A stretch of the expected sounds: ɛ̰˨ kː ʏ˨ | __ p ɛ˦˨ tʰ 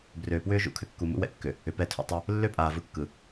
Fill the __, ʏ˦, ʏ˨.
ʏ˨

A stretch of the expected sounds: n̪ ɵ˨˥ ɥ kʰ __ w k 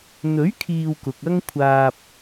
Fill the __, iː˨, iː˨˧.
iː˨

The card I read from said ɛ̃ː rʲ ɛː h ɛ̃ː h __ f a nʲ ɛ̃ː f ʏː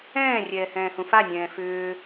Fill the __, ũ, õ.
ũ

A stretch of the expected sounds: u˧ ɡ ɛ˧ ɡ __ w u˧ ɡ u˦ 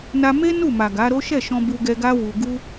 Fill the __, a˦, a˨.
a˦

